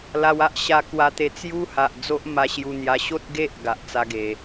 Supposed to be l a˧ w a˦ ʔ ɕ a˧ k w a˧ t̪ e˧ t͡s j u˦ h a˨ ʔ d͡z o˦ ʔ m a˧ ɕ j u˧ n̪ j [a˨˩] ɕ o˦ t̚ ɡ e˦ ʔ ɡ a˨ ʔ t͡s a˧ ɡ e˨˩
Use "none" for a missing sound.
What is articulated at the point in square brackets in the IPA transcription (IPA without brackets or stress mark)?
a˧